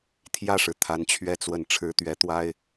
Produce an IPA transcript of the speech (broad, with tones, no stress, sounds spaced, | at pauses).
t̪ʰ j ä˥˩ ʂ ɻ̩˩ t̪ʰ a˧˥ n t͡ɕʰ ɥ ɛ˥˧ t͡s w ə˥˩ n ʈ͡ʂʰ ɻ̩˧˥ t̪ ɥ ɛ˧˥ t̪ w a˥ ɪ̯